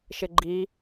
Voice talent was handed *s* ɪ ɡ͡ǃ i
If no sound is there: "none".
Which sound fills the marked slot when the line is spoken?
ʃ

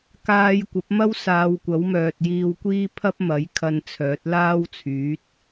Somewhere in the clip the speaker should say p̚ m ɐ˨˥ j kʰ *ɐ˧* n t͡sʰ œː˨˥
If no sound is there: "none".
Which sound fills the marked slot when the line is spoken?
ɐ˧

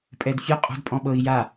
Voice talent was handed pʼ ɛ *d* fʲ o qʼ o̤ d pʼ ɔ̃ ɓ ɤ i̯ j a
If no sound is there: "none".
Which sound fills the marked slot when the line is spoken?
d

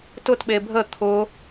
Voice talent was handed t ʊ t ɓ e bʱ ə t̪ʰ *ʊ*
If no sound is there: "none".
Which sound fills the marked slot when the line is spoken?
ʊ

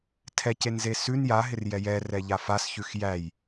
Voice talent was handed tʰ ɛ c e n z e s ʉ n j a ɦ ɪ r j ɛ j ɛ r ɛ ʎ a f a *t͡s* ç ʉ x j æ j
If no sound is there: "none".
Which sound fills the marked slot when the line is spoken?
s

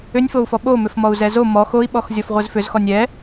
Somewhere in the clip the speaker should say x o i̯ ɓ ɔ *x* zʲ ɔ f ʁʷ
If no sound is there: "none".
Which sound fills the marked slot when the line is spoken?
x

